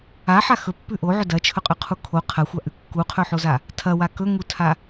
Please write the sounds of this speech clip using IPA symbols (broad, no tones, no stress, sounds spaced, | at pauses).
a ħ a x ɵ pː ʉ ʔ o ʕ ɵ d ɐ t͡ʃʰ ɵ qʼ ɵ qʰ u kʰ o qʰ ɐ xʷ a ʔ ʉ kː u qʰ ɵ ħ o z a | tʰ ɐ w a k ɵ ŋ u tʰ a